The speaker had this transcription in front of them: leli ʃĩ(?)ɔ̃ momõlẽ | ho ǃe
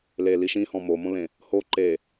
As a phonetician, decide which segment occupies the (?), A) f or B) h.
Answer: B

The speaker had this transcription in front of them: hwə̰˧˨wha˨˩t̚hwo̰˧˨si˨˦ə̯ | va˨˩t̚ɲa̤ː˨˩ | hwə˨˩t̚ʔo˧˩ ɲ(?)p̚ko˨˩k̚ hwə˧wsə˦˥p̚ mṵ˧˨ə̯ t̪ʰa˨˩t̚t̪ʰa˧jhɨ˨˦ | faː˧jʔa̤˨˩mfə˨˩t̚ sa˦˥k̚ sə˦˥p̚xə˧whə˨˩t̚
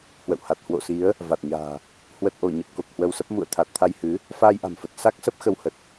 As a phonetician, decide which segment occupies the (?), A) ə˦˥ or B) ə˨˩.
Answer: B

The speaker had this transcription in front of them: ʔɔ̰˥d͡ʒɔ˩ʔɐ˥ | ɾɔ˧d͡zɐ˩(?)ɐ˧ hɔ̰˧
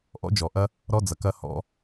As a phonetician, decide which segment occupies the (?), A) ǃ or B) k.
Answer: B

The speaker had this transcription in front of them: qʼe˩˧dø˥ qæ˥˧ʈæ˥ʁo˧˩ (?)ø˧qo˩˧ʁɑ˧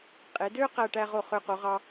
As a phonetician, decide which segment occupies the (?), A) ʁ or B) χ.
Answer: B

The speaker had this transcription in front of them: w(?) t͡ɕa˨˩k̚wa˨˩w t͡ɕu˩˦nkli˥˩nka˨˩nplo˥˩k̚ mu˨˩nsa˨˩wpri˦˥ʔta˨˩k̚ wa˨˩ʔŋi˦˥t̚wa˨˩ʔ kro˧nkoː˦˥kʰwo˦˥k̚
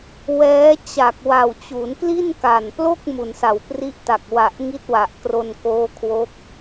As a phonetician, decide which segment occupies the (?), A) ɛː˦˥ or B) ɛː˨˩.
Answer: A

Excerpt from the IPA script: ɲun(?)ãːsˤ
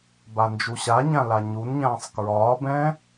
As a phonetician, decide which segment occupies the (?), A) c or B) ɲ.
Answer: B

